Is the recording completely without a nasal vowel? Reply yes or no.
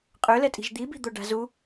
yes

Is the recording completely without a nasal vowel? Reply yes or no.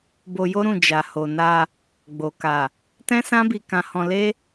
no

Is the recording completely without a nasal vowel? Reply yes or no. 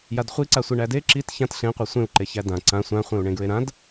no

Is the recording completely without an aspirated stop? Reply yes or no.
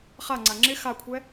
no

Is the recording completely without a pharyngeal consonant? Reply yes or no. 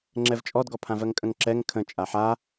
no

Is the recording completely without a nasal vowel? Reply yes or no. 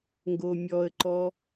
yes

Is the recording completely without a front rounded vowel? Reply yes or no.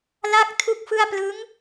yes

